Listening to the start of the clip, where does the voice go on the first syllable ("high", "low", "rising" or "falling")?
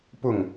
falling